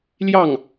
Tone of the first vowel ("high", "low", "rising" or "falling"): falling